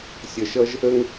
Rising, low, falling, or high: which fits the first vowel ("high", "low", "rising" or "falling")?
low